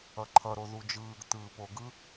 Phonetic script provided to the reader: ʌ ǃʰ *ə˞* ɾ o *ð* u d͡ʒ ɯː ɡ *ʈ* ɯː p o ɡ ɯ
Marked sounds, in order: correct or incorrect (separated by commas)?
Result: incorrect, correct, incorrect